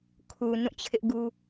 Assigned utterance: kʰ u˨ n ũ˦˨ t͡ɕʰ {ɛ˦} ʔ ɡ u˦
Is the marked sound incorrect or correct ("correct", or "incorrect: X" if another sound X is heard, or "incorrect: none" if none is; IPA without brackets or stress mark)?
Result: incorrect: ɪ˦